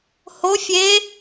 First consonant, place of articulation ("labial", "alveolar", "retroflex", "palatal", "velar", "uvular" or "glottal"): glottal